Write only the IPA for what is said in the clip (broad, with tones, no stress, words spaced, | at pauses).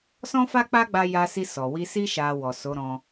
sɔ̃˦fa˦k͡pa˦ɡ͡ba˧ ja˧si˧ sɔ˨wi˧si˦ ʃa˧wɔ˨ so˨˦ɾɔ̃˧